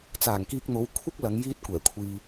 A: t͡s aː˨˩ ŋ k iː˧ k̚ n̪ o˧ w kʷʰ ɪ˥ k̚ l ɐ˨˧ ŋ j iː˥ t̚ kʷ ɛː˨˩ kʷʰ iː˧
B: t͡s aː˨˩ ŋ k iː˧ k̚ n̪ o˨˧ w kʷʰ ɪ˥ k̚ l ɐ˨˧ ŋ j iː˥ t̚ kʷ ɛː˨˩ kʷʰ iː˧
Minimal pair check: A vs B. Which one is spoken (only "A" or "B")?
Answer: B